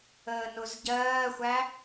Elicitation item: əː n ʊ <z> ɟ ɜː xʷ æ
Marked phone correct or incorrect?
correct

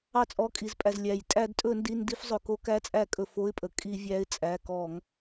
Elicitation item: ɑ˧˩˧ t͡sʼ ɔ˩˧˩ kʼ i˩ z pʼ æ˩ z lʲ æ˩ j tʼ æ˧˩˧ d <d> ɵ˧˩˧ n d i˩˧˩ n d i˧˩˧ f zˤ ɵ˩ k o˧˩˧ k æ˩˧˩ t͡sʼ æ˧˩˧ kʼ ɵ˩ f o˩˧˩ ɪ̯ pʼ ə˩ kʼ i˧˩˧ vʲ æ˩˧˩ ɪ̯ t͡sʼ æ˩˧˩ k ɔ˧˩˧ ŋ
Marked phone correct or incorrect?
incorrect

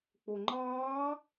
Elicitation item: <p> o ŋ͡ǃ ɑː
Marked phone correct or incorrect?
incorrect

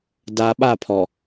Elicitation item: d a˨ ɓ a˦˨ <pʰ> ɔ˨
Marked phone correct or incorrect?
correct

